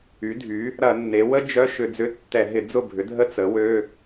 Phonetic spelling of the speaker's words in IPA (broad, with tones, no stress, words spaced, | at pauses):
y˩˥dʱy˩˥ | ɾɐ˧˩˧nːe˩˧ wə˥ d͡ʒœ˧˥˧ ʃʏ˧˩˧d͡zʏ˧˥˧tːɛ˧˩˧ ɦɪ˧˩˧d͡zʊ˥˩bʱʏ˩˥ dʱə˥t͡sə˩˥wø˧˥˧